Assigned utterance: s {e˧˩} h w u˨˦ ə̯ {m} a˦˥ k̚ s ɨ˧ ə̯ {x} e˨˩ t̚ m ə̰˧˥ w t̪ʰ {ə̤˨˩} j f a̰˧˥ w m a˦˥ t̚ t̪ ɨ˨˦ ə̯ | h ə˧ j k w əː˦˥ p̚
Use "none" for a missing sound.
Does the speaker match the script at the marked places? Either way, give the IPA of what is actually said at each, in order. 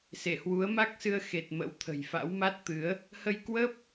e˧˩, m, x, ə̤˨˩

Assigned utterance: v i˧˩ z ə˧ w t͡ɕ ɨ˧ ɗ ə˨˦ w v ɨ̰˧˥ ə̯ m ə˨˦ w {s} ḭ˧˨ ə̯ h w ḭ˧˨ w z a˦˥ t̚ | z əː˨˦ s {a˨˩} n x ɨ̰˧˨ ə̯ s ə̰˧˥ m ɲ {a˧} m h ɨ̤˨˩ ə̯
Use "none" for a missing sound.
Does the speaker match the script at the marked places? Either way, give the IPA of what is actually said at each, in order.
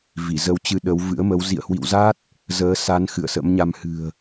z, a˨˦, a˧

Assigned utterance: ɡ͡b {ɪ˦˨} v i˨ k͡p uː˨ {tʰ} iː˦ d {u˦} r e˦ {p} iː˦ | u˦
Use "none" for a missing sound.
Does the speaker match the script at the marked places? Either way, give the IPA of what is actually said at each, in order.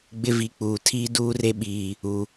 ɪ˦, tʰ, uː˦, ɓ

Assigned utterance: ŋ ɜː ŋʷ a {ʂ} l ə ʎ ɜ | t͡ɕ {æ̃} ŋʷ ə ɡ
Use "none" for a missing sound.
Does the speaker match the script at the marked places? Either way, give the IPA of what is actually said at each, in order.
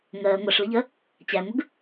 ʂ, æ

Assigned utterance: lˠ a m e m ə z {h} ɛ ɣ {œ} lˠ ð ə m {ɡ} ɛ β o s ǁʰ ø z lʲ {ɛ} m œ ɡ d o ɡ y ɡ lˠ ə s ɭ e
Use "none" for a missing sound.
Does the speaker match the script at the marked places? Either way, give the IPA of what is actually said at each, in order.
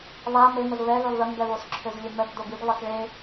β, ø, ɡ, ø

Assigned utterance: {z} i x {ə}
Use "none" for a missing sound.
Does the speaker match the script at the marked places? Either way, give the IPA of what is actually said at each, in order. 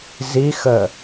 z, ə

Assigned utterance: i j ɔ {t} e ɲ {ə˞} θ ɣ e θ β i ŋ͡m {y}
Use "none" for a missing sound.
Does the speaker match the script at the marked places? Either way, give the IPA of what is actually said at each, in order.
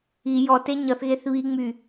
t, ʌ, y

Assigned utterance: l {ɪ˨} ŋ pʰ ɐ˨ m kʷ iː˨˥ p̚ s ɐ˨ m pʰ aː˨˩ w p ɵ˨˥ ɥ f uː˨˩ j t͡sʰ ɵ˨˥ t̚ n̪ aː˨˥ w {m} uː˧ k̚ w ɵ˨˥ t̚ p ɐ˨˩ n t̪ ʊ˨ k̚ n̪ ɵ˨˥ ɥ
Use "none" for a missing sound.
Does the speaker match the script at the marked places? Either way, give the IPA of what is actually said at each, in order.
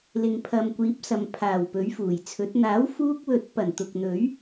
ɪ˨, f

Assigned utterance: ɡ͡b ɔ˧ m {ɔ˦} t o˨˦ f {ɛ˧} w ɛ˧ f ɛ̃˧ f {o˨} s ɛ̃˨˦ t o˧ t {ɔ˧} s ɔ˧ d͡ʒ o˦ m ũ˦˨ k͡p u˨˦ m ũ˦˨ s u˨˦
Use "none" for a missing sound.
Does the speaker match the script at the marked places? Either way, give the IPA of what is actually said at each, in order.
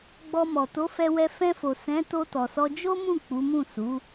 ɔ˨, ɛ˧, o˨, ɔ˨

